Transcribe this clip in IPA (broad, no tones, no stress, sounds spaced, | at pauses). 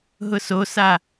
ɦ ʊ s o s a